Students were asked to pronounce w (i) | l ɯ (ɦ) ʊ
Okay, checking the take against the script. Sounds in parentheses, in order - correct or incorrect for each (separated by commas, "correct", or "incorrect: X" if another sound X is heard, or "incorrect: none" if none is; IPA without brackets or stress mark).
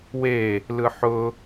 incorrect: e, incorrect: ħ